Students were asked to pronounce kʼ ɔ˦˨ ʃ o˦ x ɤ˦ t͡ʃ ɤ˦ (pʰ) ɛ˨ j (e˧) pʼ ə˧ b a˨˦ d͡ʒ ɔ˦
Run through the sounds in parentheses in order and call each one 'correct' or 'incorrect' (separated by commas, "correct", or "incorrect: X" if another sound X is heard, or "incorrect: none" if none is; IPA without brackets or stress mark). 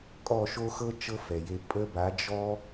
incorrect: f, correct